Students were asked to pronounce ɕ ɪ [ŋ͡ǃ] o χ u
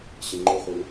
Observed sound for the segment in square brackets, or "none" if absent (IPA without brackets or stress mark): ŋ͡ǃ